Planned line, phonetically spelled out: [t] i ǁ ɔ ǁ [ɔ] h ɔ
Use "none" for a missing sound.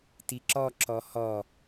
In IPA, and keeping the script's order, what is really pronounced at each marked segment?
t, ɔ

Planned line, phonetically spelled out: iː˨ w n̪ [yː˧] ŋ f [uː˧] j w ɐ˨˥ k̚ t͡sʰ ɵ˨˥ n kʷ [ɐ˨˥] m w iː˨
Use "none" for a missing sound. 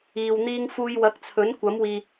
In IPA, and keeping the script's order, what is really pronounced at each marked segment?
iː˧, uː˧, ɐ˨˥

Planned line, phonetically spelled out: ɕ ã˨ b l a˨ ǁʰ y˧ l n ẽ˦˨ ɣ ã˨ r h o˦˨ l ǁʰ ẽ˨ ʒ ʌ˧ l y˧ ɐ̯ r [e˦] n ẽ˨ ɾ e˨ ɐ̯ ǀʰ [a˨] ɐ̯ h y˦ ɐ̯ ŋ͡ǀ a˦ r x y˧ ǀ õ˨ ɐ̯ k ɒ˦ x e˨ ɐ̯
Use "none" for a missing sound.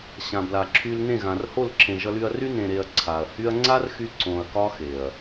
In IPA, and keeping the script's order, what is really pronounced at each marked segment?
y˦, a˨

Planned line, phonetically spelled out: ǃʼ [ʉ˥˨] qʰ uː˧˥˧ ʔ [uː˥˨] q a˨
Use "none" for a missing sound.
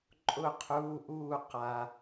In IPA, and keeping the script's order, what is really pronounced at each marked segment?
ʊ˥˨, uː˥˨

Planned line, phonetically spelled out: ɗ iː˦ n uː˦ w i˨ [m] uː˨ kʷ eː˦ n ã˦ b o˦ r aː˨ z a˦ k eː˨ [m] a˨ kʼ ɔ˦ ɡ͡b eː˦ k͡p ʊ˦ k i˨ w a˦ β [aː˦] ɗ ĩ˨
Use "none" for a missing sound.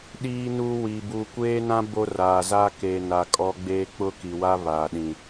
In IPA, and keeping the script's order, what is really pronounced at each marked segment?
b, n, aː˨

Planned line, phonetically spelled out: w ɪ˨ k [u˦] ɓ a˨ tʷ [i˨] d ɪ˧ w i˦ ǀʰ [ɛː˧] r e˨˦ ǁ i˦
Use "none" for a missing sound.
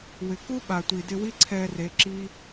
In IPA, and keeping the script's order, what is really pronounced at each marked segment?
u˦, i˨, ɛː˧

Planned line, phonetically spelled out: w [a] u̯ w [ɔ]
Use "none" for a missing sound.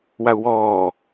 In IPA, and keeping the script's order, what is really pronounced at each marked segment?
a, ɔː

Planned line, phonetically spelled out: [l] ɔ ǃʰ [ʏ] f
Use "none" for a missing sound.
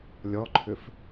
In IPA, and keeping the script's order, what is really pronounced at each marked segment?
lʲ, ʏ

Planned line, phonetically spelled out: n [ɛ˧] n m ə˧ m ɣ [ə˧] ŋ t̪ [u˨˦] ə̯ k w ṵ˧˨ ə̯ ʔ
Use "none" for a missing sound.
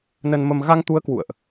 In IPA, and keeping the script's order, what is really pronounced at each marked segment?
ə˧, a˧, u˨˦

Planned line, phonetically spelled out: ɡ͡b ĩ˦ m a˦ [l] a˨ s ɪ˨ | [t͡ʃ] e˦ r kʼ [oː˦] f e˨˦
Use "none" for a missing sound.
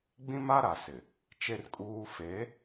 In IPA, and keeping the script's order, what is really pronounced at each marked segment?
ɾ, t͡ʃ, uː˦

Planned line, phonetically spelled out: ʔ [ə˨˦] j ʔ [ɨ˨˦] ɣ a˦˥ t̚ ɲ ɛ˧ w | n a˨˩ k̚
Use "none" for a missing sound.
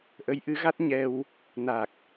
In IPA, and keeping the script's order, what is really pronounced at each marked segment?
ə˨˦, ɨ˨˦

